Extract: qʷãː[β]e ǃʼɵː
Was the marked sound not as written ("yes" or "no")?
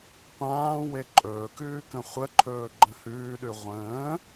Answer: yes